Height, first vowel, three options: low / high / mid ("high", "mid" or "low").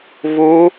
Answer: high